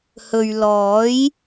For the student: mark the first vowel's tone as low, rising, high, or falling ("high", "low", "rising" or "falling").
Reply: low